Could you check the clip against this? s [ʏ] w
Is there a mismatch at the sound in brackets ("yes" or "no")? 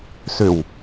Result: no